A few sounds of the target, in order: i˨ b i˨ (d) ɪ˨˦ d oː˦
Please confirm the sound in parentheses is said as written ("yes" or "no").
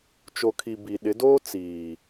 no